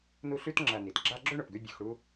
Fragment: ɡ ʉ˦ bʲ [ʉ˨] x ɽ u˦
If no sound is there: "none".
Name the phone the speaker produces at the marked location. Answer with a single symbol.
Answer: ʉ˨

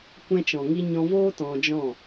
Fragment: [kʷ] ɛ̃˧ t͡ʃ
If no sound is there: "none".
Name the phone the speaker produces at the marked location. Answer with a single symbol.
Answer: kʷ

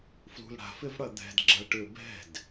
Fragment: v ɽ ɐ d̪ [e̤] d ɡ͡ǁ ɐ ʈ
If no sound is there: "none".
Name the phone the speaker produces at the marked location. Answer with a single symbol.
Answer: ɛ̤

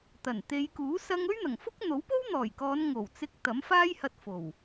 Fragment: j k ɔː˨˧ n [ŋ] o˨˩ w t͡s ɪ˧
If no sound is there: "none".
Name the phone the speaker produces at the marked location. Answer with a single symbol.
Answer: ŋ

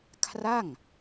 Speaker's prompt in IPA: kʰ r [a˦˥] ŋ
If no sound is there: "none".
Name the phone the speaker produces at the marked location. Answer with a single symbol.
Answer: a˥˩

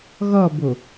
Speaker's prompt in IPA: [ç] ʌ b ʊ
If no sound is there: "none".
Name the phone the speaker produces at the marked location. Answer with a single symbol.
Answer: ɣ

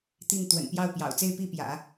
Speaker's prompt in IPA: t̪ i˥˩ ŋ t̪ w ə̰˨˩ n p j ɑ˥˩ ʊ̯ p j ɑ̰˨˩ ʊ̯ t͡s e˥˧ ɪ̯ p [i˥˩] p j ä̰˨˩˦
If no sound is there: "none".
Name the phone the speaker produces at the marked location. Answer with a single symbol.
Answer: i˥˩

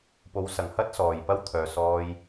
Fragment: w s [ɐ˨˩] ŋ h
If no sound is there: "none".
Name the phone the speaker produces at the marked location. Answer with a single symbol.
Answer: ɐ˨˩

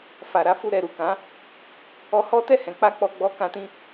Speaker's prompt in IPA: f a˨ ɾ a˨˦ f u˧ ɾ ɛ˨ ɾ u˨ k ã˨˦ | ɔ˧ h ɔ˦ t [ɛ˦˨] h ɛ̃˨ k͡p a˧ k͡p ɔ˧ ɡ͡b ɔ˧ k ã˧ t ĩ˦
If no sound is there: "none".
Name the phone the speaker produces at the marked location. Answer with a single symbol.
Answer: ɛ˦˨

